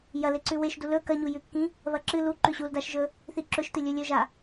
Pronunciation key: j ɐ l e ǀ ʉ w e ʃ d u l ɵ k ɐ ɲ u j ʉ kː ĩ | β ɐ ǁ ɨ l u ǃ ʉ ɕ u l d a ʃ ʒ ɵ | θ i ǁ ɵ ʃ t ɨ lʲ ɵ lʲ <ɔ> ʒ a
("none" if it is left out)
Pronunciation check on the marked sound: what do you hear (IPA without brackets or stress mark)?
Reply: ɵ